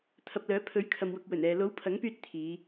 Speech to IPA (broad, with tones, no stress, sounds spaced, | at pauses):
t̪ʰ ɐ˨ p̚ l œː˨˥ pʰ ɵ˨˥ ɥ kʰ ɐ˨ m w ʊ˨ k̚ w ɵ˨˩ n ɛː˨ l o˨˥ w pʰ ɐ˨˥ ŋ p yː˧ t̚ t̪ʰ iː˨˧